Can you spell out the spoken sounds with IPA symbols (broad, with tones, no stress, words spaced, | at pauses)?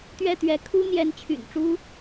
t̪ɥɛ˥˨t̪ɥɛ˨˦ kʰu˦n̪jɛ˨˦nt͡ɕʰy̰˨˩nʈ͡ʂu˦